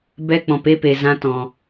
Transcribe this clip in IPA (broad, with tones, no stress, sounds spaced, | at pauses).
b ɛ˦ k͡p ɔ̃˧ p e˦ p e˧ z ã˦ t ɔ̃˧